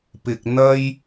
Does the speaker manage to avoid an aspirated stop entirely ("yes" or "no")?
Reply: yes